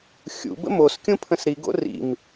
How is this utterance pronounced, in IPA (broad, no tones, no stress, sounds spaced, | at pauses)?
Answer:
xʲ ṵ b ə̰ m o s kʲ ũ pʰ ə̃ s ɾ i ɡ o̰ r ḭ m